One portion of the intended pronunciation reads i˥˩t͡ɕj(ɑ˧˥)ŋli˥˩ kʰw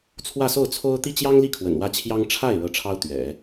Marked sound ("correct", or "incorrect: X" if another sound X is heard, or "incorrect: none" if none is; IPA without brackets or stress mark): incorrect: ɑ˥